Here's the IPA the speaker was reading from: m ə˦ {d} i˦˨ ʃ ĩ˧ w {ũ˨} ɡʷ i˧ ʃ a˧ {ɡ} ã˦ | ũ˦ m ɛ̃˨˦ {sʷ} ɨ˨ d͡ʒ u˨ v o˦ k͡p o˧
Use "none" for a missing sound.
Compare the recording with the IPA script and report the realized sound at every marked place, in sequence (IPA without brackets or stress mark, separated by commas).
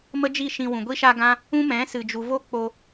d͡ʒ, ũ˨, ɡ, s